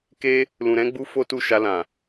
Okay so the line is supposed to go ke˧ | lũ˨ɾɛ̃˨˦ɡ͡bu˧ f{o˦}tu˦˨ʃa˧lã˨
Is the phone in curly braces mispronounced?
no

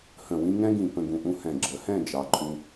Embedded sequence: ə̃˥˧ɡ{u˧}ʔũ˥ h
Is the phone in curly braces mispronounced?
yes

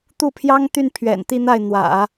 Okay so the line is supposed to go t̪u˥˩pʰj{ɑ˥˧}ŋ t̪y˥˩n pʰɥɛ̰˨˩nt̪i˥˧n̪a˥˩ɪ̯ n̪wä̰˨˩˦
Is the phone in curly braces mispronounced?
yes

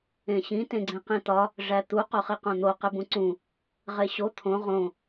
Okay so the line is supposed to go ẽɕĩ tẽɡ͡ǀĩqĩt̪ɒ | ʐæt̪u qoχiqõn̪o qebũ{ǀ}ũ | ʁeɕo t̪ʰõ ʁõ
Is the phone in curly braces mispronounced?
no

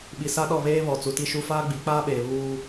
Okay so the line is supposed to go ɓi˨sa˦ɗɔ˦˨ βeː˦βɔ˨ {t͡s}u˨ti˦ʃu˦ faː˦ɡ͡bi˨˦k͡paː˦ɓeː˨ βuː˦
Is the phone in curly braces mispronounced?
no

